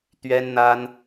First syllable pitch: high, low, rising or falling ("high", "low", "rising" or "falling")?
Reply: high